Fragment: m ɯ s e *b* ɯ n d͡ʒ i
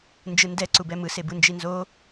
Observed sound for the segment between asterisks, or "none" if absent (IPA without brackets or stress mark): b